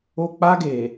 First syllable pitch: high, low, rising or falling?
high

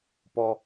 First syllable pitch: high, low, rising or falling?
high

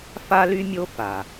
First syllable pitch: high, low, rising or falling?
high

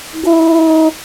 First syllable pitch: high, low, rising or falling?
high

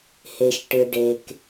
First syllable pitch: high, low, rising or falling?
low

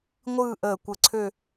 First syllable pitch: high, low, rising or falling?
falling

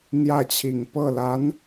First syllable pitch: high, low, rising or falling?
falling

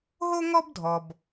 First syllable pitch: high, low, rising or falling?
high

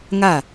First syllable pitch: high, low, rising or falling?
falling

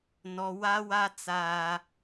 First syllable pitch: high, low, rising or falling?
high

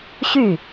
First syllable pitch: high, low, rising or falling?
falling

